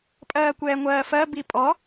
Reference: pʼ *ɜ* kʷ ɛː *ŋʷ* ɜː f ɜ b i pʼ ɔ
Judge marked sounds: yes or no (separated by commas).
no, yes